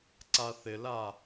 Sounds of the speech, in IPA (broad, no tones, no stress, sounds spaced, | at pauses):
ǀ a θ ɪ l a